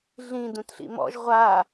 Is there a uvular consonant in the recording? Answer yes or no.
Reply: yes